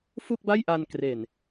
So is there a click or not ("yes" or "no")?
no